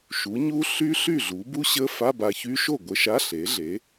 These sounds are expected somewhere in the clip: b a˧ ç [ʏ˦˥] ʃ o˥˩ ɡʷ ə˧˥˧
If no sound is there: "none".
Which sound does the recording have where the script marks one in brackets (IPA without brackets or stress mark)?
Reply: y˦˥